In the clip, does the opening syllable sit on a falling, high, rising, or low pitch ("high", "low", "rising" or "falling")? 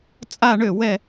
falling